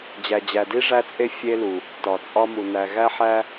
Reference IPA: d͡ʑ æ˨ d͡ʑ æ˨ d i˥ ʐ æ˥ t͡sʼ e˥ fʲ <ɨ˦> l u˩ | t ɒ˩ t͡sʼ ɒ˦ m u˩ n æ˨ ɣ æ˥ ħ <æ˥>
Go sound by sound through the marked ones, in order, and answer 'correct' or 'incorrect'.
incorrect, correct

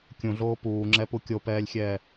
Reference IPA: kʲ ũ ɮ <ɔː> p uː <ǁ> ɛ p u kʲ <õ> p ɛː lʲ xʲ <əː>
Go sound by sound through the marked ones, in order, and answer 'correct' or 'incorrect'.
incorrect, incorrect, incorrect, incorrect

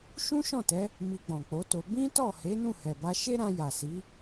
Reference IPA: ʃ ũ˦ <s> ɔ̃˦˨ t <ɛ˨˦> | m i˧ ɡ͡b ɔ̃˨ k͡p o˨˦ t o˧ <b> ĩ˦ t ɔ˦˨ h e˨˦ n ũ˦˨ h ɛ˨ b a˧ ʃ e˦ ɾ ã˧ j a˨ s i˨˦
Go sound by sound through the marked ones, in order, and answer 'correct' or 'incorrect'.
incorrect, correct, correct

